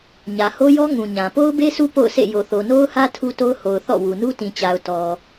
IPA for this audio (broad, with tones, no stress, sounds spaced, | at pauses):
ɲ ä˨ h o˦ j ɔ˦ ŋ ũ˨ ɲ ã˨ p o˦ ʊ̯ b e˦ s u˦ p o̰˦˨ ʊ̯ sʰ ḛ˦˨ j o˨ θ o˨ n o˦ ʊ̯ h ä˦ tʰ u˦ t o˦ ʊ̯ h o˨ ʊ̯ θ ɔ̰˦˨ w u˨ n u˦ t ĩ˨ t͡ɕ a˨ ʊ̯ t ɔ˨